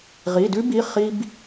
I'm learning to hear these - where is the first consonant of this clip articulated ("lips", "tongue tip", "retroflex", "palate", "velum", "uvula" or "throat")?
uvula